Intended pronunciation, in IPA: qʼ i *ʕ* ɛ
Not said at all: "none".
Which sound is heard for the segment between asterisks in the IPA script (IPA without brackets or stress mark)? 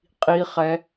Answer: χ